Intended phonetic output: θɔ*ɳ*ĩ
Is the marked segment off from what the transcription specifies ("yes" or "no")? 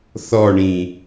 no